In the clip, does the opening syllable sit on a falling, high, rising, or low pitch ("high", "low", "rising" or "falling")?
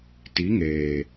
rising